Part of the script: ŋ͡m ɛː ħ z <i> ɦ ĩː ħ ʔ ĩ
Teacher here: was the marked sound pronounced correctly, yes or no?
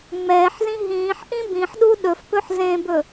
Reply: no